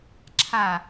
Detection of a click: present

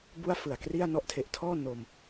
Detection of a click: absent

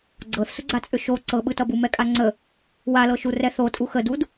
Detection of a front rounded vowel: present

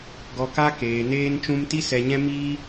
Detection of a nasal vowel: present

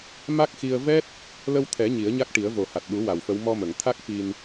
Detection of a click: absent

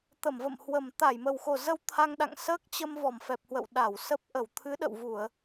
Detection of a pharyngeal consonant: absent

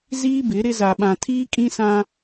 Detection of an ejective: present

